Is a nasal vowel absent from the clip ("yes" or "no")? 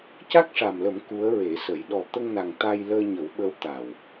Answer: yes